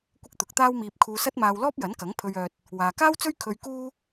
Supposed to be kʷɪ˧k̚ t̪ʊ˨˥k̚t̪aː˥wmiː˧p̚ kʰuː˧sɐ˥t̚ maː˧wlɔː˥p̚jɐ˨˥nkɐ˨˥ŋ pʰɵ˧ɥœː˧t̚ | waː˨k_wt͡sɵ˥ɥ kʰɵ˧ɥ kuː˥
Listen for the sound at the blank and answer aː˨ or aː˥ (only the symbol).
aː˥